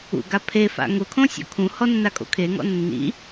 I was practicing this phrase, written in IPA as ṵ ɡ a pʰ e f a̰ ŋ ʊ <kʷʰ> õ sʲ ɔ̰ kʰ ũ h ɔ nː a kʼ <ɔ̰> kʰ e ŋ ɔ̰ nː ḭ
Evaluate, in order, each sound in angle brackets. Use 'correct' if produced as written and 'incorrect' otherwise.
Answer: incorrect, incorrect

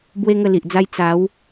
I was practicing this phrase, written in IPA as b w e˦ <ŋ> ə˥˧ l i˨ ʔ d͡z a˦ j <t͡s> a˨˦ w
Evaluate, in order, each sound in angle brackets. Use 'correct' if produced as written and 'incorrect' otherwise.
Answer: correct, correct

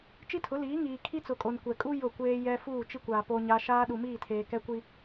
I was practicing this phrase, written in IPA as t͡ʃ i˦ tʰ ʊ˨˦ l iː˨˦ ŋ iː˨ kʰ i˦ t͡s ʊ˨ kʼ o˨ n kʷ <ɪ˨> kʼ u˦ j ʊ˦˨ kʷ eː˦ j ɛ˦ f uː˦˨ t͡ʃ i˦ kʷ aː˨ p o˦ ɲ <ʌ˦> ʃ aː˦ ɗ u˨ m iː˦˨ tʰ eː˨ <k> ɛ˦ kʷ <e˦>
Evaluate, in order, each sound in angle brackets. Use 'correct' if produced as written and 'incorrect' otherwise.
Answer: incorrect, incorrect, correct, incorrect

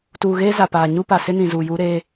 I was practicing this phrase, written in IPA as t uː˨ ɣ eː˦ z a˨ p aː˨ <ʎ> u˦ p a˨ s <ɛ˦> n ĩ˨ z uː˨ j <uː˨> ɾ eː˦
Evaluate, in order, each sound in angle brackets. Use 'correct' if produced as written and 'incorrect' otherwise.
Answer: incorrect, incorrect, incorrect

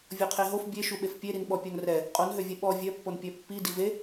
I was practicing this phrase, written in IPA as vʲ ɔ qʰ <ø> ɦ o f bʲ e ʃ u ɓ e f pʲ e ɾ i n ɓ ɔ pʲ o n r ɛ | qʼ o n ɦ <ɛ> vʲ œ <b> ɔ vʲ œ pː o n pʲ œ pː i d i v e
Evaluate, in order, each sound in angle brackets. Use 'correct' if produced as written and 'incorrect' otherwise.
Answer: incorrect, incorrect, incorrect

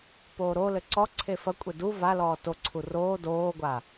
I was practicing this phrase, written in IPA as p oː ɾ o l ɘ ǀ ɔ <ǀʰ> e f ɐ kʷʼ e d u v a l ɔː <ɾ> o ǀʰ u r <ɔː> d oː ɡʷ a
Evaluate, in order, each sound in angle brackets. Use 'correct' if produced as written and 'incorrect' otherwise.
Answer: correct, incorrect, incorrect

